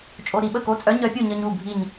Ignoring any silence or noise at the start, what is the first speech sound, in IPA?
t͡ʃʼ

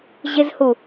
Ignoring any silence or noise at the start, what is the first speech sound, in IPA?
ʑ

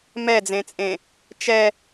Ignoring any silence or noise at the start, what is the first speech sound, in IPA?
m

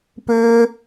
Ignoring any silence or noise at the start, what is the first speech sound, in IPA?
p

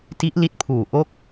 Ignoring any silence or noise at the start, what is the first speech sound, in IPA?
t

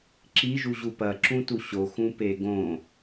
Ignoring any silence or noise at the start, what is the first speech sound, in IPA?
ǁ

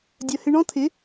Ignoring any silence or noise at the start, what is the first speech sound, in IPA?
dʲ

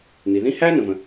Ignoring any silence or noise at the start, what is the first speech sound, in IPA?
n̪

